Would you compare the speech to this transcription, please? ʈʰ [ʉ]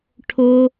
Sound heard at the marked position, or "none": ʊ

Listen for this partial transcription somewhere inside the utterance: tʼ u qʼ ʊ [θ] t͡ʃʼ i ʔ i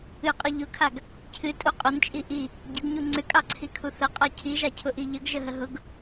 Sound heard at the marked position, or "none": n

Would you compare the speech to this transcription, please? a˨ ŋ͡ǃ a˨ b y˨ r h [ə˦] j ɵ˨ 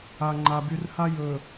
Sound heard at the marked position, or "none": a˦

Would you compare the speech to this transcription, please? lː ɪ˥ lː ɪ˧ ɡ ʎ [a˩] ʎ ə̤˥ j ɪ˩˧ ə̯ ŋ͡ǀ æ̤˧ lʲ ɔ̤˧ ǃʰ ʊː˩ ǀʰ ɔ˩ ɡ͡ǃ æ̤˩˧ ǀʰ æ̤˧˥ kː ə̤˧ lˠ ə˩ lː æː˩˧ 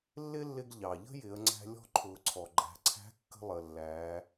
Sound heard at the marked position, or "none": ɑ˩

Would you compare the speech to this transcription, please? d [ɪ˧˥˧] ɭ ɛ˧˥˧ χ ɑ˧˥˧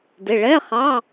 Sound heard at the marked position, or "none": ɪ˩˧˩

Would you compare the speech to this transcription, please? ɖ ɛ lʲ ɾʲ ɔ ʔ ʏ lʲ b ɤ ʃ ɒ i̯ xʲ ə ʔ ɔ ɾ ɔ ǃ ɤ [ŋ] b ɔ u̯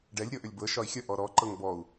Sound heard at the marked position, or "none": ŋ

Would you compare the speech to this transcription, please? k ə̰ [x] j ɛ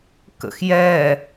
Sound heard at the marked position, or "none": x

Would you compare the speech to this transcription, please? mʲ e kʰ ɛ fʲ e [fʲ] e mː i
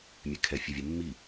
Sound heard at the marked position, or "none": vʲ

